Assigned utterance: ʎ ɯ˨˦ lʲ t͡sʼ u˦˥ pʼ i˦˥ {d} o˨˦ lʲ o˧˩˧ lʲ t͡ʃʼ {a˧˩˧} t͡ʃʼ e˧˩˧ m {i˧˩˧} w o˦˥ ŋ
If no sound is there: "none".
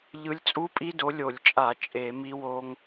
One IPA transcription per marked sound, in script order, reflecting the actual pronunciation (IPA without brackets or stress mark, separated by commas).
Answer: d, a˧˩˧, i˦˥